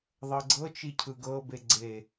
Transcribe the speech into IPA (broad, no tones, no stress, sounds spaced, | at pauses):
ðˤ ɤ ɡ͡ǀ ɤ t͡ʃ i cʰ ɯ ɡ ɤ b e ɡ͡ǀ e